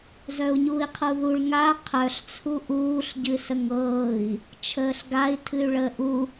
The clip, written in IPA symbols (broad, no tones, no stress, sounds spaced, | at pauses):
z œ u̯ ɲ uː i̯ qʰ u ð u ɭ ŋ a qʰ œ ɬ t͡sʰ u ʔ uː ɬ ɟ ɨ s ə ŋ ɤː i̯ | t͡ʃʰ əː ɬ ɡ a i̯ tʰ ɨ y̯ ɭ əː ʔ u